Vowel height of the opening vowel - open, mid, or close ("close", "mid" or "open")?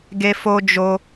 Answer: mid